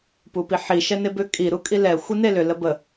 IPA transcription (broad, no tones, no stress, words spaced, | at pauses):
pupiħi ʃɛnebʏ kʼi ɾukʼilɛ xʷinelʏ ləbə